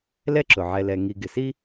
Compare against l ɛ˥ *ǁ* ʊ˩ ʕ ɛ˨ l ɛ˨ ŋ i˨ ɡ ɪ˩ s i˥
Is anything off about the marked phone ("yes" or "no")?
no